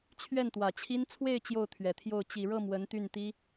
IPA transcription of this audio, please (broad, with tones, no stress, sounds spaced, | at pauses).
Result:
t͡ɕʰ ɥ ɛ˥˩ n t̪ w ä˨˩ t͡ɕʰ i˥ n t͡sʰ w e˥˧ ɪ̯ t͡ɕ j o˥˩ ʊ̯ t̪ʰ ɥ ɛ˨˩ t̪ʰ j o˥˩ ʊ̯ t͡ɕ i˨˩ ɻ ɤ˥˩ m w ə˧˥ n t̪ y˥˩ n t̪ i˥